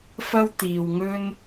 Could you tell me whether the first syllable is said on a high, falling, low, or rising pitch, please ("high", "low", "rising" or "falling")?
high